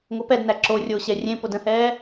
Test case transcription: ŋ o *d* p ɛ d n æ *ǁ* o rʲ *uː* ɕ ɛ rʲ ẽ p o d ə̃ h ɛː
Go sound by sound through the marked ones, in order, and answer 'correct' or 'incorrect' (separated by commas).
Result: incorrect, correct, incorrect